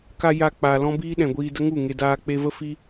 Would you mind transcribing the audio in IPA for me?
ka˧ jaː˧k͡paː˨ lɔ̃˦ biː˦ɗɛ̃˨ɡʷiː˧də˦ ŋu˦˨ŋe˧ daː˧k͡pe˧və˦ fi˦

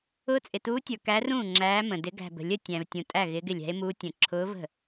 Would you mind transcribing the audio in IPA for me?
ʊː˧˥t͡sʼɪ˨tuː˧˥tʲə˞˨ kæ˧˥rũː˥˩ ŋ͡ǁæː˧˥mə̃˨ dɪ˧˥ ɡæ̤˨bə̤˨lʲə˥˩ tʲæ̃˨v tʲũ˨ tʼæ˥˩ ɣɪː˧˥ɡɪ˥˩lʲæ̤˧˥e̯muː˧˥ tʲə̃˨ ǁʰʊː˧˥və̤˥˩

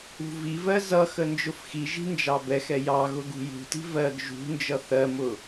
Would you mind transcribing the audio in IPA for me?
ṳvivɜ zʌ xənd͡ʒʊfxiʒi̤ nd͡ʒɑbɛxɛ jɑɣʊ ɡṳjṳti̤ vɜɡ ʒṳnd͡ʒʌ θɜmʊ

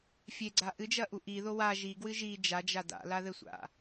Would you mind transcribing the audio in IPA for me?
fʲeɡ͡ǀa ʔɨd͡ʒɐʔu ʔiðo wa ʒiɡwɨ ʒi d͡ʒad͡ʒa da̰laðɘsʷa̰

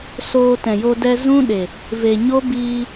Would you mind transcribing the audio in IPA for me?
soː˧tɛ̃˨jo˧ dɛ˧zũ˦ɗe˨ | ve˨ɲo˦biː˧

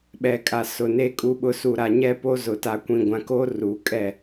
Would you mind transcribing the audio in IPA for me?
ɓɛ˨kʼa˨sʊ˨ ne˨kʼu˨ɓʊ˨ su˨ ɾa˨ɲɛ˦po˦zʊ˨ ta˨kʷĩ˨ɡʷã˨ ko˦ ru˨˦kʼɛ˦˨

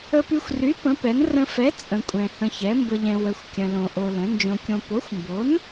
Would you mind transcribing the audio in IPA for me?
ə˧py˧xʷry˨˥ pə̃˨˥pɛ˨˥n rə̃˧fɛ˨˥ t͡sʼə̃˧kʷʼɛ̃˧ hə̃˧çɛ˨˥ mbə˧ʎɛ̃˧ wə˧xʷ kʲə̃˧lõ˧ʔo˧lə̃˨˥ nd͡ʒõ˧kʲõ˧ po˨˥xʷmbo˨˥n

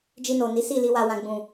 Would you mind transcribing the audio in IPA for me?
d͡ʒi˧no˨ ni˨˦si˦˨li˧ wa˨wã˨ ɡ͡bũ˨

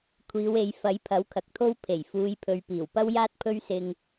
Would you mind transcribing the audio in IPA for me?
kʷʰiː˨˧we˨˧j fɐ˨˥jpʰɐ˨˥wkʰɐ˨k̚t̪ʰo˥w pʰe˨˩j fuː˨˧j pʰɵ˨˧ɥpiː˨˩wpɐ˥wjaː˥t̚ pʰɵ˥ɥsɪ˧ŋ

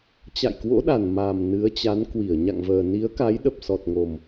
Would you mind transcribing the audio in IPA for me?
t͡ɕa̰˧˨jkwo̰˧˥ɗa˨˩n ma˨˩m nɨ˨˦ə̯t͡ɕa˨˦nkwi˧˩ə̯ ɲa̰˧˨ŋvəː˨˩ ni˨˦ə̯ka˨˦j ɗə˨˩p̚sɔ˨˩t̚ŋo˨˩m

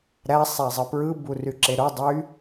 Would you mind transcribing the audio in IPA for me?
ɾæ sˤæzˤɯpɹɯ buryǁeɾo dˤy

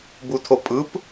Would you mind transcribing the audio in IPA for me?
butʰopʼɯp

